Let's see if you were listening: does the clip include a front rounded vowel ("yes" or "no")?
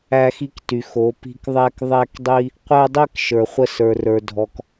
yes